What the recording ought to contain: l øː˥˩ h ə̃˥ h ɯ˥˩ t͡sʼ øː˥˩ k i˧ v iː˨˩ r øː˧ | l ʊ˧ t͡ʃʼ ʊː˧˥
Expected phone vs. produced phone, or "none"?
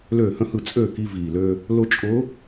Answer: r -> l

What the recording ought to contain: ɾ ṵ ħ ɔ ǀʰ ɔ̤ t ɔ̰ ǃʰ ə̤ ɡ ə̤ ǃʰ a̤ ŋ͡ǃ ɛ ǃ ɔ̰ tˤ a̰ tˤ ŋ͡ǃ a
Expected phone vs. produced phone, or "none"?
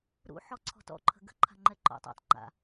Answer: a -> a̰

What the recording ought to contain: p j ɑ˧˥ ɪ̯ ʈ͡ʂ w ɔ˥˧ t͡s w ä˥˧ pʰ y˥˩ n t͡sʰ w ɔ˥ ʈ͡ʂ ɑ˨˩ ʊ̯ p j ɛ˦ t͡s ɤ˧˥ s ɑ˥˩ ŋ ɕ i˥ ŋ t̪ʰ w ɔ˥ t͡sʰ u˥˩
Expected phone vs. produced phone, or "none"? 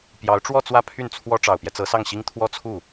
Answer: ɪ̯ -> ʊ̯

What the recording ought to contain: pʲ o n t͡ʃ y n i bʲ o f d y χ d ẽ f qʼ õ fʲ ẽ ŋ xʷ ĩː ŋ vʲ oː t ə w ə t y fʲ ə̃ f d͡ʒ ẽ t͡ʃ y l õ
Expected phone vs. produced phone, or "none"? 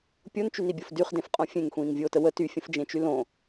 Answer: none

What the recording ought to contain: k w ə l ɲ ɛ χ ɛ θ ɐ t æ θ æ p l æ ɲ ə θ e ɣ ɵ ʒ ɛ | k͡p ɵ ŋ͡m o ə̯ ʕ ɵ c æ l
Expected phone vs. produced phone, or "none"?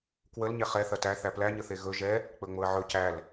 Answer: none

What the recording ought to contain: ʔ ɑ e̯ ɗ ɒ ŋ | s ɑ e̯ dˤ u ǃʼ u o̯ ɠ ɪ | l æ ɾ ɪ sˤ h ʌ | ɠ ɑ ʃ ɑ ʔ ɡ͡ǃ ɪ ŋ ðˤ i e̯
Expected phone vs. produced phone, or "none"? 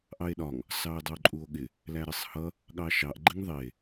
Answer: none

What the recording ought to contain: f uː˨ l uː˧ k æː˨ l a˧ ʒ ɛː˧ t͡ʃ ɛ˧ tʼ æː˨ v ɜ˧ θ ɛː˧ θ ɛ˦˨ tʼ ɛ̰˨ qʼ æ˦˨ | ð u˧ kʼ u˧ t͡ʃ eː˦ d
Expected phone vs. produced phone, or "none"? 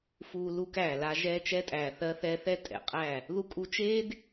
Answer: v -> θ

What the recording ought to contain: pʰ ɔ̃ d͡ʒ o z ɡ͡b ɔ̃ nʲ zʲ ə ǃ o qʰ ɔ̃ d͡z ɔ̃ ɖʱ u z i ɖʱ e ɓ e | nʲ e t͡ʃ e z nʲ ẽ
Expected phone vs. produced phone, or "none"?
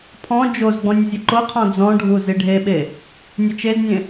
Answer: none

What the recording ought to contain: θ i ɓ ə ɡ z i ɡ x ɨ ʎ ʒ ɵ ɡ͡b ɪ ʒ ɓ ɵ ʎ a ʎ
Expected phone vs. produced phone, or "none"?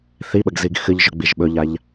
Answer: ɪ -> i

